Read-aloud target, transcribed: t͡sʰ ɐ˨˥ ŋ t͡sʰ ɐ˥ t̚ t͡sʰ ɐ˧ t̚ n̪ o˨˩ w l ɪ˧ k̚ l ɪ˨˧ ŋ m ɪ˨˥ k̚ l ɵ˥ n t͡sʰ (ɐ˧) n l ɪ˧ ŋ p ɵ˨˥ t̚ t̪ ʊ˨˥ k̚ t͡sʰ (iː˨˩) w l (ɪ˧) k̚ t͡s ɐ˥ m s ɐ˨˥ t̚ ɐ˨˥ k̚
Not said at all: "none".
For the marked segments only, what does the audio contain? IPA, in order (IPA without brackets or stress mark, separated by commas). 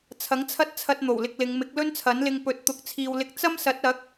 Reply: ɐ˨˥, iː˨, ɪ˧